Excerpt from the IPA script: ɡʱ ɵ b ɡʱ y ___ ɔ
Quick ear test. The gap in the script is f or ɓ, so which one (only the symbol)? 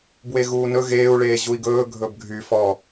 f